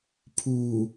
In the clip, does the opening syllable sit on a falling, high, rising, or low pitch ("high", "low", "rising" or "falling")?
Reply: low